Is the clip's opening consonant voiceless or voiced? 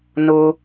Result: voiced